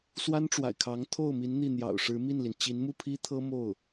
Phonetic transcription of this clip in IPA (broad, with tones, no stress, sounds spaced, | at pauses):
s w a˥ n ʈ͡ʂ w a̰˨˩ ɪ̯ kʰ ɑ˧˥ ŋ t̪ʰ o˥˩ ʊ̯ m i˧˥ n n̪ i˥˩ n̪ j ɑ̰˨˩ ʊ̯ ʂ ɻ̩˧˥ m i˥˩ n l i˩ n t͡ɕ i˧˥ n m u˥˩ pʰ i˥ t̪ʰ ɤ˥ m o˥˩ ʊ̯